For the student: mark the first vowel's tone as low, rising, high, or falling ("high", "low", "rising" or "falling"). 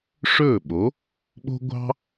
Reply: falling